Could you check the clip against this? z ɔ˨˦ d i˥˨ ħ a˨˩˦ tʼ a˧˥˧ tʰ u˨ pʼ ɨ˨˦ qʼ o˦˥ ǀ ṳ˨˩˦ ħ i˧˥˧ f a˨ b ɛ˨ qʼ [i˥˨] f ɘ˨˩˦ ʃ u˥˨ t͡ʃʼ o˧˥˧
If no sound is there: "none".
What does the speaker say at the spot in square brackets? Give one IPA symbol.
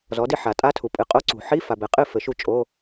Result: ɨ˥˨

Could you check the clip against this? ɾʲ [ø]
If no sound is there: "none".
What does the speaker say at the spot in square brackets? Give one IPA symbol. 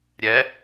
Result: ɛ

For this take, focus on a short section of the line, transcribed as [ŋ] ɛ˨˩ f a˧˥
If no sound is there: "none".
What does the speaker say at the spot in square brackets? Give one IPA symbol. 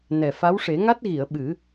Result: n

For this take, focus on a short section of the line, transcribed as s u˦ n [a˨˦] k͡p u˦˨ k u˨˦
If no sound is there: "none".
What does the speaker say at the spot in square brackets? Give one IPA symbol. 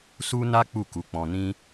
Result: a˦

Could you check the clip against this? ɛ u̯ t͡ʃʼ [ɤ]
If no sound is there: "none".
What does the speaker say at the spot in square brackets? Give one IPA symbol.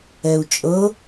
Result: ɤ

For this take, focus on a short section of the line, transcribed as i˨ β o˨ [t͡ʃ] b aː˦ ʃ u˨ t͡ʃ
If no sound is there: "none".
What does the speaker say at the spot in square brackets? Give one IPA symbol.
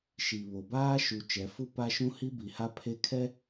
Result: none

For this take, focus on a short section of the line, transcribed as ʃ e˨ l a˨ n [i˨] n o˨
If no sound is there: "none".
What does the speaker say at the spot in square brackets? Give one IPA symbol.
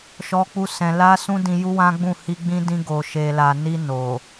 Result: i˧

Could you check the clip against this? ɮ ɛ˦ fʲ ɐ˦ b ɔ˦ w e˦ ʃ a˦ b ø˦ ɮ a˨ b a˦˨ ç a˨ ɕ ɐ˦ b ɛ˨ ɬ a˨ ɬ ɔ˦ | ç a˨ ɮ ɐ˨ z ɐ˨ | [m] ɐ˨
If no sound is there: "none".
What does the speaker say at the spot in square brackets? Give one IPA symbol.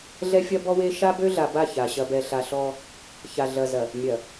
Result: mʲ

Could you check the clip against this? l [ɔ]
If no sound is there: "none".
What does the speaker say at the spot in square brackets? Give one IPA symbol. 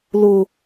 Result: ʊ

